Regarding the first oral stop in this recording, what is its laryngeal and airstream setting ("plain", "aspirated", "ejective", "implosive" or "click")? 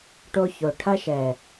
plain